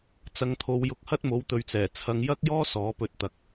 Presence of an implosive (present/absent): absent